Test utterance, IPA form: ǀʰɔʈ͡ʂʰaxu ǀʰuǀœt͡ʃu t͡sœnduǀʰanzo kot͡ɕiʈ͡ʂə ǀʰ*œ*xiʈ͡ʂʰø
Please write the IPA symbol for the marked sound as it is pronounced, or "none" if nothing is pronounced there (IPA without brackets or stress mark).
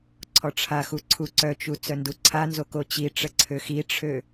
ø